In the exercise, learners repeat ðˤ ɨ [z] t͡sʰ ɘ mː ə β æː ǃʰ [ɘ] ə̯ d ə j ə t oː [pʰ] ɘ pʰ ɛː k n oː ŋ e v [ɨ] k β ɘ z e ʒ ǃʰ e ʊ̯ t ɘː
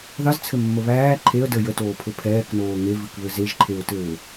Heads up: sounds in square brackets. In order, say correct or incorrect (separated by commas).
correct, incorrect, correct, correct